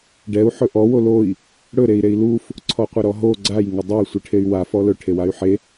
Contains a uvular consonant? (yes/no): yes